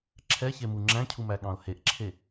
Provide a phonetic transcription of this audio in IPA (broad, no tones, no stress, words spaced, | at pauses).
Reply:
ǁʰɛçemu ŋ͡ǁæ̃cʰumæɠɑ̃ʊ̯ heʔǁʰe